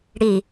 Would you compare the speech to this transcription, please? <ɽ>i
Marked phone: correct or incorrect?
correct